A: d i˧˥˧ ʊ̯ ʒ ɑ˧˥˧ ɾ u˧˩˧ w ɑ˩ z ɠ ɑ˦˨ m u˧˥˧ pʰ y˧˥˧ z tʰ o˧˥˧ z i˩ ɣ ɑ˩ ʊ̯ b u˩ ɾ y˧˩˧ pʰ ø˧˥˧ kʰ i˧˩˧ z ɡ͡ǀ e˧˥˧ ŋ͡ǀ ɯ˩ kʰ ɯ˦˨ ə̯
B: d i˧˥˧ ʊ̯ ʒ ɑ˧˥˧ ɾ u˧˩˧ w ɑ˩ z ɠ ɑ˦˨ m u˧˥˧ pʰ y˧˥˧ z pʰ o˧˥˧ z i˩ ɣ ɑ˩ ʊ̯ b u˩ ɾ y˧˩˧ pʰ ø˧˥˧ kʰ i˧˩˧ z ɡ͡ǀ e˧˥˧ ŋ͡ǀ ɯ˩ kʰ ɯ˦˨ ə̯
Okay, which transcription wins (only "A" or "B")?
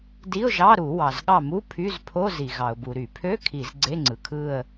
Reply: B